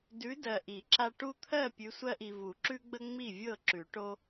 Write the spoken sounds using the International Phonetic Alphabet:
d ʉ˨˦ d ɜ˨ ʔ i˨˩˦ ǁ a˦ ʈ u˦ t̪ʰ ɜ˥˨ pʲ ʉ˨˦ sʷ ɜ˦ ʔ i˨ v u˨˩˦ ǁ ʉ˦ ɡ͡b ə˦ ŋ͡m i˥˨ vʲ ɤ˥˨ ǁ ʉ˨˩˦ ʈ o˦

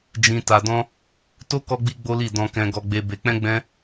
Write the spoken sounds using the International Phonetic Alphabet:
d͡ʒ ĩ˧ t a˧ d ɔ̃˦ | t o˦ k ɔ˦ ɡ͡b i˦ ɡ͡b o˦ l i˦˨ d ɔ̃˧ k ɛ̃˧ ɡ ɔ˧ ɡ͡b e˧ b e˧ k͡p ɛ̃˦ ɡ͡b ɛ̃˦

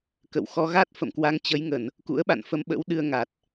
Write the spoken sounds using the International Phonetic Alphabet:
k ə̰˧˨ w x ɔ˧ ɣ a˦˥ t̚ f ə̰˧˨ m k w a˧ ŋ t͡ɕ ə˨˦ j ŋ ə˧˩˨ n | k ṵ˧˥ ə̯ ɓ a̰˧˨ n f ə˨˦ m ɓ ə̰˧˥ w ɗ ɨ˧ ə̯ ŋ a˨˩ t̚

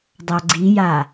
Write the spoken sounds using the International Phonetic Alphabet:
dˤ a ɡ͡ǀ i j a

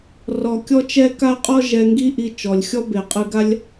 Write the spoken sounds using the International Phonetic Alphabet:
r ɔ˧ kʲ ɔ˥ t͡ʃ ɛ˥ k a˥ qʼ ɔ˥ ʒ ɛ˧ ŋ ɡ i˥ ʔ i˧ t͡ʃ ɔ˩ lʲ xʲ ɔ˥ b e˩ qʼ ɯ˧ ɡ a˥ lʲ

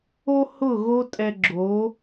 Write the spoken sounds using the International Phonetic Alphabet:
o˥ h ʊ˥˩ ɣ o˥ tʼ ɛ˧ ɡ͡ǁ o˩˥

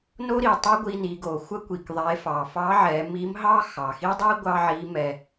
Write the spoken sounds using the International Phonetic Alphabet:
n o˥ ɾ i˩ tˤ ɛ˥ ɡʷ i˧ n i˩˧ ɡ o˩ xʷ ə˥ kʷ i˩ k ðˤ e˩˧ f ɑ˩ f ɑ˧˥ ʕ ɛ˩˧ m i˧˥ m ɦ ɑ˥ x ɑ˩ x i˥ dˤ i˥ ɡʷ ɑ˥ ʕ i˧˥ m ɛ˧

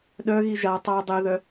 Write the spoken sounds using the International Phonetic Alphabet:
ɗ œ ɣ i ʒ a tˤ a dˤ e ð œ

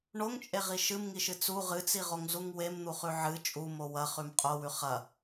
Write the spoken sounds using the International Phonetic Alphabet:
ɳ o ŋ t͡ʃʼ e ʁ i ʃ ɨ m ŋ i ʃ ɨ t͡s u ʁ ɨ t͡s i ʁ o ŋ z u ŋ w e m n̪ u χ ʉ ʕ ɨ t͡ʃʼ u m o w ɐ χ ʉ m qʼ o w ʉ χ ɐ

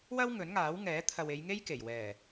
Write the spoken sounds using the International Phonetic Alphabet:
w ɐ˥ w ŋ ɵ˨˥ n ŋ aː˨˥ w ŋ ɛː˨˥ t̪ʰ ɐ˨ w e˨˧ j ŋ e˥ j k e˨˩ j w ɛː˨˩

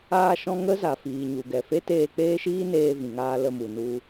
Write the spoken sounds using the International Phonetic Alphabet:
aː˧ ʃ ɔ̃˧ ŋ ə˦ z a˨ f iː˨ ɲ u˨ ɡ ɛ˨ f e˦ t eː˧ k͡p eː˦ ʃ iː˦ n eː˧ v ĩ˨ ŋ aː˧ l ə˧ m u˨ n u˧

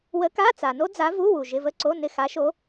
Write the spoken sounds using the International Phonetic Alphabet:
w ə˧˥ k a˧˥˧ t͡s a˨ n o˥ d͡z a˧˥ v u˧˥˧ w u˨ ʒ ɪ˧˥˧ v ə˥ ǀ o˧˥˧ n ɪ˦˨ x a˧˥ ʃ o˧˥

